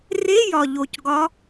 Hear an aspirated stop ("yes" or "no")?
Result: no